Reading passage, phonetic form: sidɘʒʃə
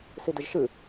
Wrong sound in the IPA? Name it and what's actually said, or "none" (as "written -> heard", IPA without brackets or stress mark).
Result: ə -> ɨ